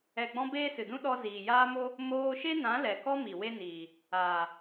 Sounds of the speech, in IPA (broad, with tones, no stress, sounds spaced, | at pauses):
ɛ˨ ɡ͡b ɔ̃˧ b eː˦ s ɨ˨ d ũ˦ ɗ ɔ˧ z iː˨ j aː˦ m o˦ | m oː˧ ʃ e˦ n ã˨˦ l ɛ˨ k ɔ˦ m i˨ w e˦ n iː˨ | aː˨